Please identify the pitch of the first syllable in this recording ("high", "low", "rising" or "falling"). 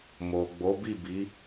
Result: low